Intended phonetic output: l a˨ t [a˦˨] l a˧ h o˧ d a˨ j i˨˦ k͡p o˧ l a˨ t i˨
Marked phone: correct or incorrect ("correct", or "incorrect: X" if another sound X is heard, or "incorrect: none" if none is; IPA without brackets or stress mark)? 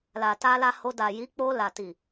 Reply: incorrect: a˧